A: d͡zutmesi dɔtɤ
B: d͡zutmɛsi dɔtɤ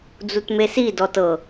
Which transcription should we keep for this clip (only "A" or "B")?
A